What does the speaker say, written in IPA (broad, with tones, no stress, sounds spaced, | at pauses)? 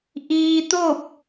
ʔ iː˧ t̪ o˥˨ p̚